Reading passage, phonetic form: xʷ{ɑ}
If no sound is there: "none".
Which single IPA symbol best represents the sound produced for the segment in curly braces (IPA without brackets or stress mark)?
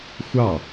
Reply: ɑ